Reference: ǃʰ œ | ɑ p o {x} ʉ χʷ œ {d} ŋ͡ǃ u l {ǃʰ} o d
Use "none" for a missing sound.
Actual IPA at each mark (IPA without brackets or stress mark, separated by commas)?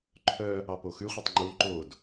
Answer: x, tˤ, ǃ